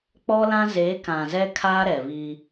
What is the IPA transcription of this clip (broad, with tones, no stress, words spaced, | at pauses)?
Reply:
k͡pɔ˦lã˦ ze˨˦kã˨ zɛ˦kʰaː˦ɾɛ˨βiː˦